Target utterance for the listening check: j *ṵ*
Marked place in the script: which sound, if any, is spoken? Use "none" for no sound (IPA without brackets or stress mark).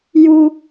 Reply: u